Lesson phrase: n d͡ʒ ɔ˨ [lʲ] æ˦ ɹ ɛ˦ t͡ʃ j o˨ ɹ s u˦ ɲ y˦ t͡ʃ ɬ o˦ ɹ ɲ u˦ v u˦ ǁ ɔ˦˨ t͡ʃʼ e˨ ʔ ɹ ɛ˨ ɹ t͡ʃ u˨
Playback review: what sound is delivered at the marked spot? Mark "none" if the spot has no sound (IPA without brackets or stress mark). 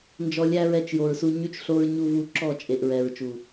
lʲ